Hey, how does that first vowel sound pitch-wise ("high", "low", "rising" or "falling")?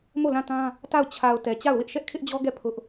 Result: falling